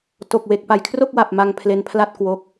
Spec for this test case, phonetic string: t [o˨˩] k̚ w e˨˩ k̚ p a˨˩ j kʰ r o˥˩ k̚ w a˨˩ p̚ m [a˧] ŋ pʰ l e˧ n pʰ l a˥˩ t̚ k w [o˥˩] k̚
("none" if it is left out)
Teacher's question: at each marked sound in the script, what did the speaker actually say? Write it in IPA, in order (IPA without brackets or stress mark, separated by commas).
o˨˩, a˧, o˦˥